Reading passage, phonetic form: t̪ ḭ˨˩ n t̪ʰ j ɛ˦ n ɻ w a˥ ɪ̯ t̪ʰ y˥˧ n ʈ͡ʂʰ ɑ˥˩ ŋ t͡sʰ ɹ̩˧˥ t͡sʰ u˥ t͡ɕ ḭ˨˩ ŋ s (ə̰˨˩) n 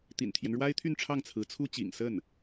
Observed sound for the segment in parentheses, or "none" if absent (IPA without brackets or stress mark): ə˥˩